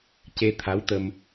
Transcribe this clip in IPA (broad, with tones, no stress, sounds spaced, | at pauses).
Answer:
c e˧ t̪ʰ a˧˥ w t̪ ə˧ m